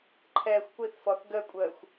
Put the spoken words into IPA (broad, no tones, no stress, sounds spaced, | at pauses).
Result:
ǃʰ ɛː xʷ kʷ i θ f ɔ θ ɡ ə kʷʼ əː xʷ